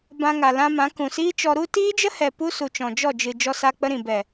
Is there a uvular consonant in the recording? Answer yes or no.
no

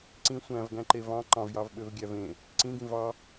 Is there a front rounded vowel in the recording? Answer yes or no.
yes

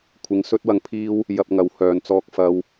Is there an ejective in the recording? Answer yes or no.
no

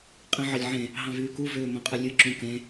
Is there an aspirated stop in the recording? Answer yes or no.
no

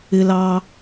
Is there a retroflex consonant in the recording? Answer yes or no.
no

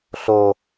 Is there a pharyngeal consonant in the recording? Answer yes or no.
no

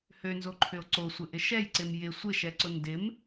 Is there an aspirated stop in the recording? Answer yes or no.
yes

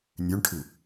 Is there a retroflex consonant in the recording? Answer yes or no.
yes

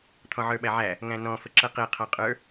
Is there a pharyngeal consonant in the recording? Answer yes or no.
yes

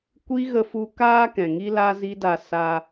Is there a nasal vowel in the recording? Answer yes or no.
yes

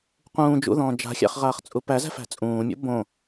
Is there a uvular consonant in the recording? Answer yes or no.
yes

